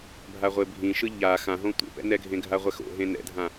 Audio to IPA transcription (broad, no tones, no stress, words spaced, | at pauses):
bʱaʁʷebʱĩʃɯ ʎa xãɦõ tʷḛpɛ̰nɛ ɡʱẽɡʱaʁʷɛxo̰ ɦẽnɛ̰dʱã